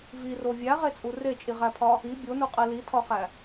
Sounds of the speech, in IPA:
v i r o vʲ æ ʁ e t͡sʼ u r e t͡ʃʼ i ʁ æ pʰ ɒ | i bʲ o n u qʼ e l i tʰ ɒ χ æ

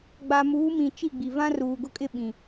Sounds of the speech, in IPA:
ɡ͡b a˨ m uː˨˦ m ĩ˨ t͡ʃ i˦˨ ɡ͡b i˨ v ã˦ r uː˨ ɡ ʊ˦ kʼ ɪ˦ ɓ ĩ˨

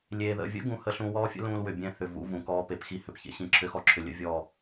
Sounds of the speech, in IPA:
lʲ eː˨ ð ə̰˨ vʲ ə̰˦ ɡ ũ˦ h ə˦ ɬ ũ˦ w ɔː˦ fʲ ə̰˦ l ũː˦ l w ʏ˨ bʲ ɛ̃˦ θ ʏ˨ v ṵ˦ v ũ˨ k ɔː˦ p e˨ p x i˦ h ʏ˨ p ç ḛ˦ ɕ ĩ˨ ǁʰ ʏ˦ x ɔ˦ ǁʰ ʏ˨ lʲ ə̰˦ vʲ ɔ˦˨

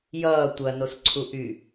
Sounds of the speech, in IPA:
j ʌː tʷ ɐ n o s ǀʰ u ʔ y

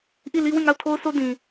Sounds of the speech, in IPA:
ʔ i˦˨ l i˦ w ĩ˦˨ ŋ a˦˨ ʊ̯ tʰ o˦ ʊ̯ sʰ o˦ d ĩ˨

